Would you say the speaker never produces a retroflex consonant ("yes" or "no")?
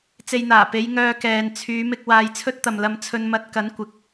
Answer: yes